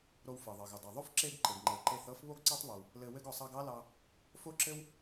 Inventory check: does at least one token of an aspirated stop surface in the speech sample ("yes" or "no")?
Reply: no